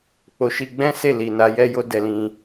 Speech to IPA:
k͡p o˧ ʃ i˧ ɡ͡b ɛ̃˦ s e˦˨ l i˨ n a˨˦ j ɛ˦ j o˦ d ɛ˧ l ĩ˧

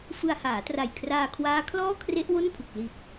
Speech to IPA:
f ɯ˧ a̯ h aː˩˦ t r a˨˩ j kʰ r aː˧ kʰ w aː˦˥ kʰ l ɔː˥˩ kʰ r e˦˥ ʔ w o˥˩ n pʰ u˨˩ k̚ l i˨˩ t̚

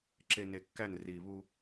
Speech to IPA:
ǁ e˨ n e˨ kː æ˦˨ n r i˨ β u˦

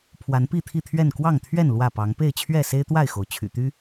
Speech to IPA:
pʰ w a˨˦ n p i˥˨ t̪ʰ i˥˨ t̪ʰ ɥ ɛ˥˨ n k w ɑ˥˨ ŋ t̪ʰ ɥ ɛ˥˨ n l w ä˥˨ p ɑ˨˦ ŋ p e˥˨ ɪ̯ t͡ɕʰ ɥ ɛ˥˨ s e˦ ɪ̯ t̪ w a˥˨ ɪ̯ x o˩ ʊ̯ t͡ɕʰ y̰˨˩ t̪ y˦

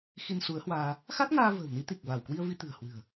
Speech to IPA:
x i˧ n s u˨˦ ə̯ h w aː˧ | x a˦˥ t̚ ŋ aː˧ v ə̤ː˨˩ w n i˨˦ t̪ i˨˩ k̚ v a˧˩ w k w i˧ ə̯ v i˧ t̪ ɨ̤˨˩ ə̯ h w ɨ̤˨˩ ə̯

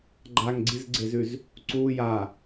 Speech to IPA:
ɡ͡ǃ a ŋ ɡ͡ǀ i z ɡ͡ǀ e z ʉ z | ǀ u j a

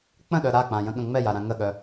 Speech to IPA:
k͡p ə̃ ɗ œ ɾ a k͡p ã j ə̃ ɠ ə̃ ŋ͡m ɛ j a ɾ ã ŋ ə ɠ œ

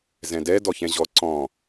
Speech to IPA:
z ɛ̃ d ɛ d ɔ ç ɛ̃ ʑ ɔ ǀ ɔ̃

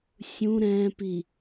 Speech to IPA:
sʲ ũ ɾ ɛ̃ p i

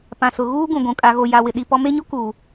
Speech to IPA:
p ã˨ s ʊ˨ ɣ uː˦ ɡ ũ˨ ɡʷ ũ˨ kʼ a˨ ɣ o˨ j a˨ w ɪ˨ ɗ i˦ p ɔ˦ m e˦ ɲ o˦ k uː˨

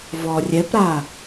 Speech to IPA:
v ɔ rʲ ɛ p ɾ a

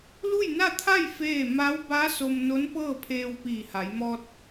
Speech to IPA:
l u˥˨ j n a˥˨ t̪ʰ a˥˨ j f eː˥˨ m a˧˥ w b a˧˥ s o˧ m n o˧˥ n p ɤː˥˨ pʰ eː˧ w p iː˧˩ h a˩˧ j m ɔː˧ t̚

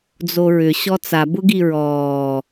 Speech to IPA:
d͡z o ɹ ʏ ɕ ɔ t͡s a b ʊ ɡ i ɹ ɔː

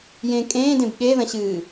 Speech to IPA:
j ẽ kʼ ẽː d ẽ b ɠ e ð ɐ̃ ɕ ɨː

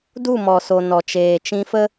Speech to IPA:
d u˦˨ m ɔ˨ s o˨ n ɔ˨ t͡ʃ eː˨ t͡ʃ ĩ˧ f ə˦

